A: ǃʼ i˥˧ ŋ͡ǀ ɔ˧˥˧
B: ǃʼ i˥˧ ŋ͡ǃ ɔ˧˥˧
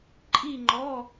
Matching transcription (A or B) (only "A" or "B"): B